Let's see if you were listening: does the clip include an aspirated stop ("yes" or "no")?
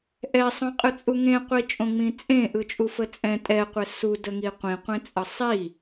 no